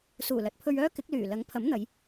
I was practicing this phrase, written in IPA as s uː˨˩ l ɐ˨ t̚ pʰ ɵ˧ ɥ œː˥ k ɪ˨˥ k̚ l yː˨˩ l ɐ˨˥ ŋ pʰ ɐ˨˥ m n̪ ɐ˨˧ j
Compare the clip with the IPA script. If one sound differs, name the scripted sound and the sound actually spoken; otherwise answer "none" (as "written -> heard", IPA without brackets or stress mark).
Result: none